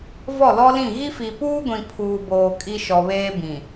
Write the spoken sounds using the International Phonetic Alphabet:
v ɔ˦˨ l ɔ˦ l ĩ˦˨ ɣ i˦ f i˨ p uː˦ ɡʷ ĩ˨ pʰ uː˨ b oː˨ kʼ i˦ ʃ ɔ˨ β eː˦ b ĩ˨

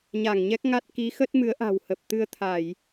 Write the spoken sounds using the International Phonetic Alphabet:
ɲ a˧˩ ŋ ɲ ɛ˦˥ k̚ ŋ a˦˥ t̚ k i˨˦ x ə˦˥ t̚ m ɨ˨˦ ə̯ ʔ a̤˨˩ w h ə˨˩ p̚ t̪ ɨ˧ ə̯ t̪ʰ a˧˩˨ j

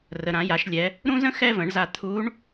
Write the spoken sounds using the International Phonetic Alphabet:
r ə˩ ɾ ã˩˧ j a˩˧ ʃ lʲ ɛ˩˧ | ɾ ũ˥ z ə̃˥ x ɛ˥ v ə̃˩˧ ɳ z a˧ t̪ʰ u˧˥ ɳ

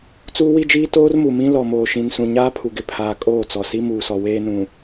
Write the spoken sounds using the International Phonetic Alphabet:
t͡s uː˦ w i˦ d͡ʒ iː˦ t oː˦ r m u˨ m ĩ˦ l ɔ˨ m oː˨ ʃ ĩ˨ n s ũ˨ ɲ aː˦ pʰ u˨ ɡ ɪ˨ pʰ aː˨ kʼ oː˦˨ t͡s ɔ˨ s i˦ m uː˨ s ɔ˨ w eː˦ n ũ˨

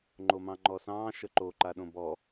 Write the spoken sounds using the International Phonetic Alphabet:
ŋ͡ǃ o m ɑ̃ ŋ͡ǃ ɔ s ɑ̃ː ʃ ə ǃ o ǃ a ɗ õ b ɔ

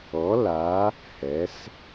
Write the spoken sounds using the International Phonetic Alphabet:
ɔ˨˥ l a˨˥ | h ɛ˩˧ s

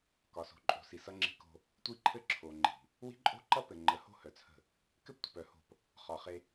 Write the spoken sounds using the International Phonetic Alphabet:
k ɒ˨ s o̤˨ ǃʼ o̤˨ s i˨ s ʌ˦ ŋ͡ǁ i̤˦ k o̤˦ | tʷ i˦ ǃʰ ɘ˦ ǁʰ o˨ ŋ͡ǃ i̤˨ | w i̤˦ ǃʼ o̤˦ ǃ ʌ˦ p ɘ˨ ŋ͡ǃ ə˨˦ h o̤˦ h œ˨ t͡sʰ ə̤˦˨ | k ɘ˦ p tʷ ə̤˨ p œ˨ h o̤˦˨ p | χ ɒ˨ χ e˦

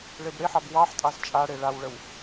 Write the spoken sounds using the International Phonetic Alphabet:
ɭ e b ɽ e ħ ɑ b w ɑ ħ tʼ ɑ z t͡ʃʼ a ɽ e ɭ a w ɭ ə w

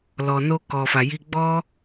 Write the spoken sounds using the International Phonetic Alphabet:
l ɔ˨ n o˦ k ɔ˨ f a˨ j i˧ ɡ͡b ɔ˦

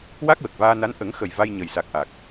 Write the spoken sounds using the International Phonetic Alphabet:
w a˦˥ k̚ w ə˨˩ k̚ v aː˧ n a˧˥ n ʔ ə˨˩˦ ŋ x ə˨˩ j v a˧ j ɲ ə˨˩ j s a˨˩ k̚ ʔ a˨˩ k̚

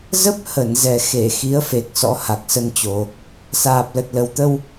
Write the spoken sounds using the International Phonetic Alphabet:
z ə˦˥ p̚ h ə˧˩ n z ɛ˨˩ x e˧˩ x i˨˦ ə̯ f e˨˩ k̚ s ɔ̰˧˥ h a˨˩ k̚ s ə˧ n t͡ɕ o˨˩ | s aː˨˩ p̚ l ə˨˩ t̚ l ə˨˩ w t̪ ə˧ w

